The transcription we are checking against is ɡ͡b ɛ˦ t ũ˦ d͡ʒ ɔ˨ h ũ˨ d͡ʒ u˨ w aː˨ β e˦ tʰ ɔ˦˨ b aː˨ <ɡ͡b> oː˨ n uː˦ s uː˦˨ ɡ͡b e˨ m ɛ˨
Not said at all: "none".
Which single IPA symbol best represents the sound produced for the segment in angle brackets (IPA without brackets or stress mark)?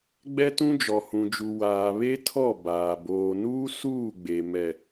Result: b